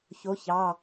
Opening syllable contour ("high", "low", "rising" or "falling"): rising